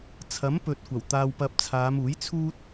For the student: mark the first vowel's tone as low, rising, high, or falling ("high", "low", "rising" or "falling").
rising